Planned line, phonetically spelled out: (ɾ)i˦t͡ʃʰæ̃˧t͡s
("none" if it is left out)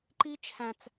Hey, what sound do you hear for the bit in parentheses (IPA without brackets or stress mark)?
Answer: ǃ